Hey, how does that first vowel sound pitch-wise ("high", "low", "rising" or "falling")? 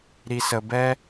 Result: low